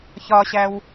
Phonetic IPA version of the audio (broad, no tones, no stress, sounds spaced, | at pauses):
ç ɒ ɕ æ w